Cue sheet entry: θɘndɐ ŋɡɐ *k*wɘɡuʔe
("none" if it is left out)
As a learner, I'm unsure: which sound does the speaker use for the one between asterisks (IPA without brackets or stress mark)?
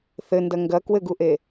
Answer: k